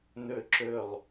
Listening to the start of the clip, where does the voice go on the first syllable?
low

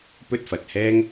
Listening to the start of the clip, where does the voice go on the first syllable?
high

